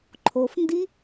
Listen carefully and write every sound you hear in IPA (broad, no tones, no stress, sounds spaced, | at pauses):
ǃʰ o f n d i